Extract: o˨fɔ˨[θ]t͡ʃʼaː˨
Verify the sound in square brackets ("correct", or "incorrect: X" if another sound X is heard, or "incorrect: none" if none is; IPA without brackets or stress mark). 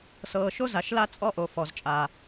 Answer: incorrect: z